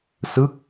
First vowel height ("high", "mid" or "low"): high